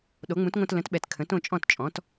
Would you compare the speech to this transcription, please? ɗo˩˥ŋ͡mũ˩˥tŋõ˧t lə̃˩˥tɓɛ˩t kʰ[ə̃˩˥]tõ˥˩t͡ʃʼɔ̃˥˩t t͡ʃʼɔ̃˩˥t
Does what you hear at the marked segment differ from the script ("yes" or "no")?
no